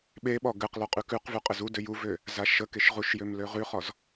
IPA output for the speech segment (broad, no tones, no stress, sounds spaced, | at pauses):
ɓ e ɓ ɔ ɡ ɘ q l ɔ qʼ ʉ k ʉ q v ʉ qʼ ɘ z u d ø j u v ø | z a ʃ ə k e ʃ ʁ u ʃ j ø m l ø ʁ ʉ χ ɔ z